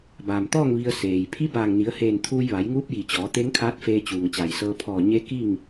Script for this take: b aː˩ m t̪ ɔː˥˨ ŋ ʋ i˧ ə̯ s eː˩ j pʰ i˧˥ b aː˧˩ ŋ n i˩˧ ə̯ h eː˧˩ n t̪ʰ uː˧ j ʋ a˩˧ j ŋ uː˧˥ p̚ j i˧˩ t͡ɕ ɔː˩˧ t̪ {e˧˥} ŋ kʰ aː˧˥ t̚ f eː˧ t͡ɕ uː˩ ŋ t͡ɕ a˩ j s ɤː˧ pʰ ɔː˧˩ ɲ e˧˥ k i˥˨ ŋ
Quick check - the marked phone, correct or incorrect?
correct